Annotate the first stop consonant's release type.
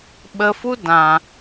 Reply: implosive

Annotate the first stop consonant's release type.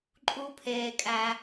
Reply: click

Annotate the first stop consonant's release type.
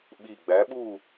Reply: implosive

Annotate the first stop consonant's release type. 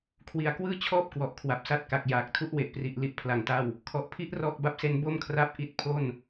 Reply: aspirated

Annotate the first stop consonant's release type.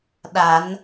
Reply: implosive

